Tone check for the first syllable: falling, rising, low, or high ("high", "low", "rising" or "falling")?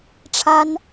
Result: high